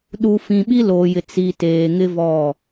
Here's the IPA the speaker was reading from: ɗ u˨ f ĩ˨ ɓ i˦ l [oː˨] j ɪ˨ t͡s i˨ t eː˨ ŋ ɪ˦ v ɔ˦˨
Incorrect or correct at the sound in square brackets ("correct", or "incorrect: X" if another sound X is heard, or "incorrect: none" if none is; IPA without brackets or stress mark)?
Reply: correct